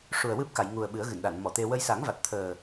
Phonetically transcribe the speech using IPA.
ʂ u˨˩ ə̯ w ɨ˦˥ p̚ k a˨˩˨ j ŋ u˨˩ ə̯ ɓ ɨ˨˩˦ ə̯ ɣ ɨ˨˩˨ n ɗ a˨˩˨ n m ɔ˨˩˨ t̪ e˧ w ə˧ j s a˨˩˦ ŋ v a˨˩ t̚ t̪ʰ əː˨˩

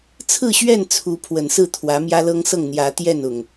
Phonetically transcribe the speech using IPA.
t͡sʰ ɹ̩˥˨ ɕ ɥ ɛ˥˨ n t͡sʰ u˨˦ pʰ w ə˨˩ n s ɹ̩˥˨ t̪ʰ w ä˨˦ m j ä˦ l ɤ˦ ŋ s ɤ˥˨ ŋ n̪ j ä˨˦ t̪ j ɛ˥˨ n ʊ˩ ŋ

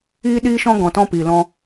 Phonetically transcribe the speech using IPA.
iː˦ ɗ iː˦ ʃ ɔ̃˦ ɡ ɔ̃˧ t ɔ̃˦ p iː˧ l ɔ̃˦

